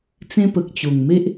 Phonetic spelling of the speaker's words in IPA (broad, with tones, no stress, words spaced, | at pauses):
t͡sẽ˦pə˨k̚t͡ɕo˨˩ŋ me˦ʔ